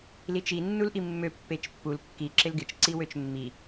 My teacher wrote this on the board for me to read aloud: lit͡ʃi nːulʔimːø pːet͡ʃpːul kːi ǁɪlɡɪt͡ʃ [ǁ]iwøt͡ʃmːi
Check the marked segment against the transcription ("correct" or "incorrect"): incorrect